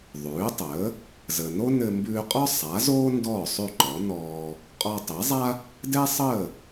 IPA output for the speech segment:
ðˤ ʉː˩˥ tˤ əː˩˥ | z əː˩ n o˥ n ɘ˧ m b ʉː˧ qʼ ɒ˥ sˤ a˩˥ z oː˥ n d ɔː˥˩ sˤ ʉ˥˩ ǃ ɔ˩˥ n ɔː˧ | qʼ ɔ˧ tˤ e˩˥ zˤ a˥ | d ɛ˥ sˤ əː˥˩

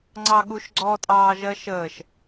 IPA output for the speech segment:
ŋ͡ǀ ɑ ɠ u ʃ ɡ͡ǀ ɔ tʼ ɑː ʒ ɜ ʃ əː ʃ

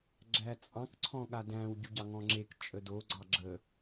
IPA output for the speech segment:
ɡ͡ǁ æ t͡sʼ ɑ̃ k ǀʰ ɔ̃ ɠ a d æ̃ w ɟ u ɟ ɑ ŋ ɔ̃ ŋ͡ǁ e k t͡ʃʼ ə d o ɡ͡ǀ ɑ ɡ͡ǁ ə

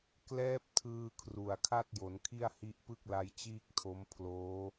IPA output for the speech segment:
k l ɛː˦˥ p̚ tʰ ɯː˧ kʰ r u˨˩ a̯ kʰ a˥˩ t̚ j o˩˦ n kʰ i˥˩ a̯ h i˦˥ ʔ p ɯ˥˩ k̚ l a˦˥ j t͡ɕ iː˥˩ k̚ tʰ o˦˥ m pʰ l oː˦˥

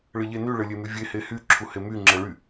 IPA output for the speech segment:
ɭ ɘ ʎ e n y ɭ ɘ lʲ e m y vʲ e h e h y ǁʰ u h e m y ŋ͡ǁ ɛ ɭ y

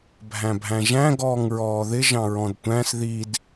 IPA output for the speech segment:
bʱ æ̃ bʱ æ̃ ʒ æ̃ ɡ ɔː ŋ ɹ ɔː ð ɪ ʒ ɑ̃ ɹ ɔ̃ d tʷ æ̃ s ð i d

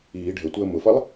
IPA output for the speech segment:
iː ɖʱ ə tʷ əː m ʊ f ʌ lˠ

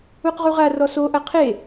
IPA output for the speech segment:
u q ʁ u ʁ a r ɔ s o ʔ ɐ qʰ e

